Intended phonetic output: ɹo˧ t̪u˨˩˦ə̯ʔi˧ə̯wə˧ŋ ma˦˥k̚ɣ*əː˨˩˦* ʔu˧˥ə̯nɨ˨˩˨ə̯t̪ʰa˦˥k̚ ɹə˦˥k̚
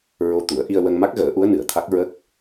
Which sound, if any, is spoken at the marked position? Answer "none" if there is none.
əː˨˩˦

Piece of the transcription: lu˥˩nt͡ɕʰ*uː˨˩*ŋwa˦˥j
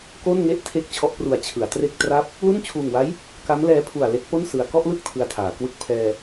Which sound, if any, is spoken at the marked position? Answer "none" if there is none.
uː˨˩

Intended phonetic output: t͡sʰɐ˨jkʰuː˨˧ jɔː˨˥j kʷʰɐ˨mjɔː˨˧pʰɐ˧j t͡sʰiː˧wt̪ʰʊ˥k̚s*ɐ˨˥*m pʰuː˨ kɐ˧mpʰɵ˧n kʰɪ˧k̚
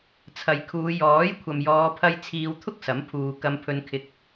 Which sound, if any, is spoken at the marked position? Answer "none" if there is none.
ɐ˨˥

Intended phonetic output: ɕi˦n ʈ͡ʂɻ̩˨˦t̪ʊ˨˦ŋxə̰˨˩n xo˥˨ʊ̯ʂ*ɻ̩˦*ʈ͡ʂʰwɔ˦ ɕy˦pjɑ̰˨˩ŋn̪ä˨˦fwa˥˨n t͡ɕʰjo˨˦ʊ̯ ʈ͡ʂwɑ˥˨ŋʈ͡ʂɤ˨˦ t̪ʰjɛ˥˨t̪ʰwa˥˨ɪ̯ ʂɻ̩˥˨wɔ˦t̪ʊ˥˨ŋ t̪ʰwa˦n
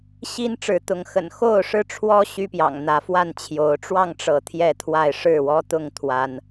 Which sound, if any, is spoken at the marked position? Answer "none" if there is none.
ɻ̩˦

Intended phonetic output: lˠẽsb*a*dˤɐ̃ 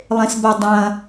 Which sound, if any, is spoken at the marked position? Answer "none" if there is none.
a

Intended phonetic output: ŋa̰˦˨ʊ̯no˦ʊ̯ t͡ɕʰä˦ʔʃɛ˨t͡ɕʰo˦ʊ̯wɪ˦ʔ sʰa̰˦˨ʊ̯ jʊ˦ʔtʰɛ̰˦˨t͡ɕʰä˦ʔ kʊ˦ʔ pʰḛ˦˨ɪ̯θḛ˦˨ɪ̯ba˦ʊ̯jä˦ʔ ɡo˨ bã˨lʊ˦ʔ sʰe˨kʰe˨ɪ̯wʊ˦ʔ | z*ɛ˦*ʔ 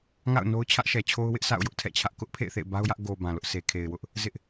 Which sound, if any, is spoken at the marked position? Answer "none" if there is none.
ɪ˦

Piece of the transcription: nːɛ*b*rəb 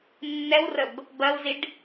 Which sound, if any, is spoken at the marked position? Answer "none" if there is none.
w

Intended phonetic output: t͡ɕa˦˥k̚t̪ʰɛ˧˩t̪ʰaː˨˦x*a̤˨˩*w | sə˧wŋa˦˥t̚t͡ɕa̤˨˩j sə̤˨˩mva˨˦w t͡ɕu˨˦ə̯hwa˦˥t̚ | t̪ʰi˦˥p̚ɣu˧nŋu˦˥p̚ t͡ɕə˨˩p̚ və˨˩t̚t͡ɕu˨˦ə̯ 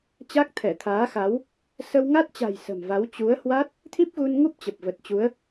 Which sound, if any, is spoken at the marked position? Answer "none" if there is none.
a˨˦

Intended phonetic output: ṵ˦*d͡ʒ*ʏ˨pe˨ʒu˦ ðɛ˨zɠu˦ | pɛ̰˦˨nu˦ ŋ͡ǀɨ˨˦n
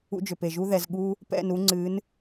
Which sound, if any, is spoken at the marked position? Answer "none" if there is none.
d͡ʒ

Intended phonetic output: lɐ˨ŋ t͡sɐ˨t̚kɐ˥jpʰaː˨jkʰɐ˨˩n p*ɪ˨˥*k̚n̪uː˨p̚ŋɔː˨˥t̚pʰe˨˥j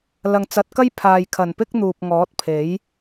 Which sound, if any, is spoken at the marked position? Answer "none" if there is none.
ɪ˥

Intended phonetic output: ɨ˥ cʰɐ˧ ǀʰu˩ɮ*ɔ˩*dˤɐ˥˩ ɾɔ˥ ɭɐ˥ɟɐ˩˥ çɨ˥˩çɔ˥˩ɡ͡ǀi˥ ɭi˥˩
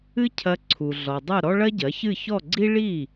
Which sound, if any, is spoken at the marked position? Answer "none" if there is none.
ɔ˩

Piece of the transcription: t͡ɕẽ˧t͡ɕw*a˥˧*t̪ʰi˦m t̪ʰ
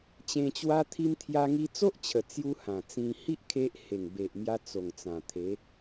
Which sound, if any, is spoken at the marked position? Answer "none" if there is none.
a˦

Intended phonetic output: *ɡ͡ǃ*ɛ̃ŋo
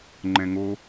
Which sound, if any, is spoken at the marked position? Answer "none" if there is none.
ŋ͡ǃ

